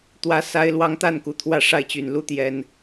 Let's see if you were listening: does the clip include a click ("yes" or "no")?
no